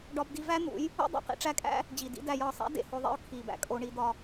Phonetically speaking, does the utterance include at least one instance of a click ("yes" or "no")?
no